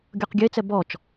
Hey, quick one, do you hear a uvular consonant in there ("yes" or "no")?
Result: yes